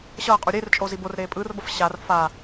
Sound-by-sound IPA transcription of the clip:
ɕʌːqʼu ɾʲert͡ʃʼozi borɾeː pʼɯːrbʌf ɕar faː

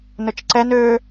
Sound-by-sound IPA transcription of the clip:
nɵt͡ʃǀɛn ø

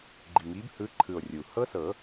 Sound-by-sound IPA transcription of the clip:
ɡ͡ǃi˨˩ŋi˨˦bhɯ˨˦ǃʰɯ˨˩o̯ rʲu˨˩ hɤ˦˥sɤ˨˩˦

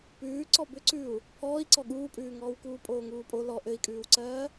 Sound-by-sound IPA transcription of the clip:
pʉː ǀɔbʏǀʉu̯ | pʰɔːi̯ǀɔ ɠuːpʼʉːŋɔːw kuːpʼoːŋuːpʼo lɔ ʔɘi̯kʼʉːwǀɜː

